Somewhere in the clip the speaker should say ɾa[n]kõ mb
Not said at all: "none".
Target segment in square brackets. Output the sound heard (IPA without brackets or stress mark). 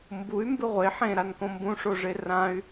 n